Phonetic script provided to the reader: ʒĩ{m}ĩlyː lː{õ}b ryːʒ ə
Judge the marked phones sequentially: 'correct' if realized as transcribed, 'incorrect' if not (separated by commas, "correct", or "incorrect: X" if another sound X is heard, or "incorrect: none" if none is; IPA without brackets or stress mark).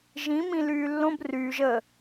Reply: correct, correct